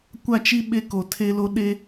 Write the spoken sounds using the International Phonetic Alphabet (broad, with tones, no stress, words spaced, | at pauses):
kʷa˦˨t͡ʃi˦ ɓe˦ko˨tʰe˦lo˦ ɗe˦